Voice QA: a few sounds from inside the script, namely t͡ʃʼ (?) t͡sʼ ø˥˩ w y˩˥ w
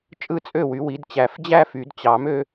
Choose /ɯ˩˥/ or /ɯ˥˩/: ɯ˥˩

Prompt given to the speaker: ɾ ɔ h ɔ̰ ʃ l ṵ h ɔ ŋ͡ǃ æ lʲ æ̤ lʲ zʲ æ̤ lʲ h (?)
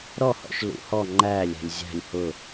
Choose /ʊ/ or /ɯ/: ʊ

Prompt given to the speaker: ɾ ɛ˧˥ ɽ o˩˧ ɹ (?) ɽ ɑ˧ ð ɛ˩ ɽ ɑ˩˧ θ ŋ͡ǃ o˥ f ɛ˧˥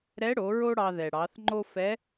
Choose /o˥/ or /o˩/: o˥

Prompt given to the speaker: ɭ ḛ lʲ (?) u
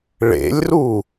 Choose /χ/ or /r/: r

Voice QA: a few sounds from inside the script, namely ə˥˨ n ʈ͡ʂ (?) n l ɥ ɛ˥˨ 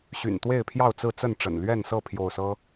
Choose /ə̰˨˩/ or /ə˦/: ə̰˨˩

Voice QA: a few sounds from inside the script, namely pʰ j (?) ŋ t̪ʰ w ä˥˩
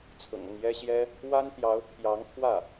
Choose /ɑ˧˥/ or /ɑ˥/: ɑ˧˥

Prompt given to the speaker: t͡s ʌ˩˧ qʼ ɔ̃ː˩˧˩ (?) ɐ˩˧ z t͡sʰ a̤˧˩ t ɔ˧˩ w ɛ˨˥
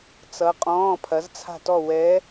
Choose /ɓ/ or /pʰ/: pʰ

